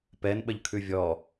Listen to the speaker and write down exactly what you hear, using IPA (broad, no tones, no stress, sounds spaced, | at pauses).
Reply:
p ɛ n ɓ ə ʎ kʰ ʉ vʲ ɔ